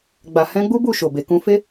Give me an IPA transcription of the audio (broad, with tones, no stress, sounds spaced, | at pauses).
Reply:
ɡ͡b a˨ h ɛ̃˧ ɡ͡b u˦ b u˦˨ ʃ o˨ b e˨ k ũ˧ f e˦